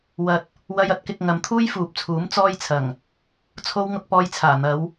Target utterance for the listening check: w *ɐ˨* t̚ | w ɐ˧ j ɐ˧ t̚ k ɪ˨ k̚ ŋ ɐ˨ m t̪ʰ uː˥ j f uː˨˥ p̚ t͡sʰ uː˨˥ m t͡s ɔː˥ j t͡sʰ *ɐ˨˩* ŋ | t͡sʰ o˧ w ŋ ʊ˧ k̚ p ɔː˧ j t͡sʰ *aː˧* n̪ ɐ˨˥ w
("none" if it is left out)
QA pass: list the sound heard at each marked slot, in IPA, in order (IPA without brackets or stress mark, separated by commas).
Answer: ɐ˨, ɐ˨˩, aː˨˩